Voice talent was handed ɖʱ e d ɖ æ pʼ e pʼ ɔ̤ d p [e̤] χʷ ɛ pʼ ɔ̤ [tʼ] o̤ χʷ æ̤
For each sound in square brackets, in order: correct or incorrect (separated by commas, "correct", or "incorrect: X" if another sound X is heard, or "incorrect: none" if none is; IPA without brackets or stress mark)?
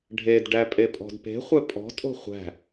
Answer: correct, correct